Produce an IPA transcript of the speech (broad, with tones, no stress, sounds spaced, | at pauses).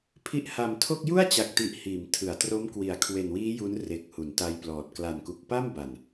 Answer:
pʰ i˦˥ ʔ h a˨˩ m tʰ o˥˩ k̚ j u˥˩ a̯ t͡ɕ a˨˩ k̚ t i˨˩ ʔ h iː˩˦ m tʰ ɯ˩˦ a̯ t r o˦˥ m k w i˩˦ a̯ kʰ w e˨˩ n w iː˦˥ j u˦˥ n r e˨˩ k̚ h u˩˦ n t a˧ j p l ɔː˨˩ t̚ k l a˨˩ n k u˨˩ k̚ p a˥˩ m b a˨˩ n